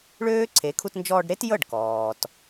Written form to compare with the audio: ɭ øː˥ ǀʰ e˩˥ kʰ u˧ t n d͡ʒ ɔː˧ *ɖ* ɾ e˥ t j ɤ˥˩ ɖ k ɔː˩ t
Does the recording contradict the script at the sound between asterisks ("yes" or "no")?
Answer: no